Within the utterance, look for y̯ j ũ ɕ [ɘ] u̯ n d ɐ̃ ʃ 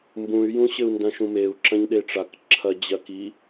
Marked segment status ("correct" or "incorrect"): correct